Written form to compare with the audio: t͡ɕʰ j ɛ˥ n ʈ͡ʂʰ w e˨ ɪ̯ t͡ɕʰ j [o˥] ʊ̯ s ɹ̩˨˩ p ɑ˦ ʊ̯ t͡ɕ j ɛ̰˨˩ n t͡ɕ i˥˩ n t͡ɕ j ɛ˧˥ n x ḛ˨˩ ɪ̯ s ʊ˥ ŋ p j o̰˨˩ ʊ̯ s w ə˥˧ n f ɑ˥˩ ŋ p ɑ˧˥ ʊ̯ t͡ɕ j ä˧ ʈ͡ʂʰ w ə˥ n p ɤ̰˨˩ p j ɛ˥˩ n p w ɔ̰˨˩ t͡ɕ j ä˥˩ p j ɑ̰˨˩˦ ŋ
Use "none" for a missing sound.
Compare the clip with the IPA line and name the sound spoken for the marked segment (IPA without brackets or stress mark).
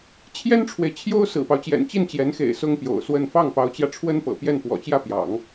o˥